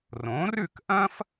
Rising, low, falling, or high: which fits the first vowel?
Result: rising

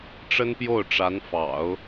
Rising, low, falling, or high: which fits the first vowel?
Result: high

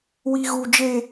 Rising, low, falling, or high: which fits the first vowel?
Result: high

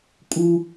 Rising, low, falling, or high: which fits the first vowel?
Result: high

